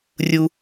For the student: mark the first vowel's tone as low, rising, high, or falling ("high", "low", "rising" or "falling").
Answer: high